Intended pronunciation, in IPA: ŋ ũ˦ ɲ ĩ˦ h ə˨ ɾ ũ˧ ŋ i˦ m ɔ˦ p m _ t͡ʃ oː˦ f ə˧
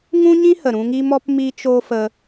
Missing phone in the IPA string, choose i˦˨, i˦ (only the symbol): i˦